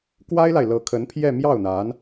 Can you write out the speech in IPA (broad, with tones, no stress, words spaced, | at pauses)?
kwa˥ɪ̯la˨ɪ̯lɤ˧˥kʰə˧˥n pʰjɛ˥˧mjɑ˥˩ʊ̯n̪a˧˥n